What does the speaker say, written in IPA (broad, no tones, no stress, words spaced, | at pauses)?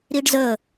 ɾiɖzə